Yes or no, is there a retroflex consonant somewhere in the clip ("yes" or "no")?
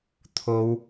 no